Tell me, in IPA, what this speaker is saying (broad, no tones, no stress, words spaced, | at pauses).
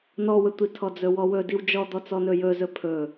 nɔwətʷi tʰɔd͡zɵwɔwɵ diwd͡ʒɔd̪ɔ t͡sɔnɵjɵ zɵpʰɵ